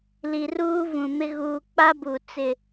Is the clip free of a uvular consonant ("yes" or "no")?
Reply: yes